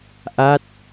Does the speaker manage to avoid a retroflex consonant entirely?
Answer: yes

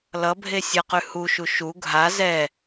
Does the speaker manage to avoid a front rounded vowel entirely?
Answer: yes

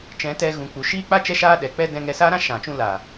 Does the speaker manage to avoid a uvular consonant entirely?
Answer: yes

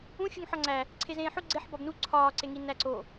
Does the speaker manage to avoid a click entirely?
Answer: no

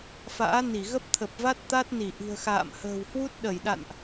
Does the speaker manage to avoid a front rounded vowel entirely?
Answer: yes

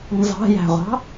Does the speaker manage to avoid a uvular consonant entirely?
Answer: no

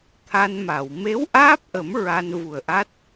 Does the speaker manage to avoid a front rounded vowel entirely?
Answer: yes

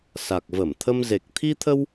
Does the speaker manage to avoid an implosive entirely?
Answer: yes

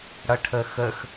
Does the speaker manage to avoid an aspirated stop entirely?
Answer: no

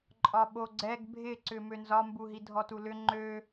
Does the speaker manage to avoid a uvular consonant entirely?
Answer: yes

